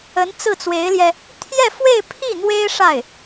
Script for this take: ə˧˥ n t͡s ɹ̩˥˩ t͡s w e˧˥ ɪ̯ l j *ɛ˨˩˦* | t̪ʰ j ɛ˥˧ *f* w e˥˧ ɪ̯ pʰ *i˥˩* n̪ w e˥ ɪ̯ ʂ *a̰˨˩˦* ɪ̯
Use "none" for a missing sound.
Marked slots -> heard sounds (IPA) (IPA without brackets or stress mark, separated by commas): ɛ˧, f, i˥˩, a˥˩